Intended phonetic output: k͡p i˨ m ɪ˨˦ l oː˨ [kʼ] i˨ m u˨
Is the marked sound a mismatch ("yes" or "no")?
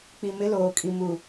no